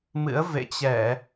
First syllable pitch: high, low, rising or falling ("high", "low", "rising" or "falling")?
rising